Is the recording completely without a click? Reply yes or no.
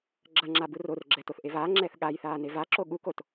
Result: no